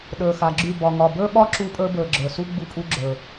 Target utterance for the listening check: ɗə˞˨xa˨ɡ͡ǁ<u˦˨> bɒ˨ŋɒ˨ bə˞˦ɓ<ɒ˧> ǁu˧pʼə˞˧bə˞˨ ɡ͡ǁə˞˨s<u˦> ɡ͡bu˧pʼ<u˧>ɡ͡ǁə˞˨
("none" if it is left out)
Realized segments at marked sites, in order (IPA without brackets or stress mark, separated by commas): y˦˨, ɒ˦, u˦, u˧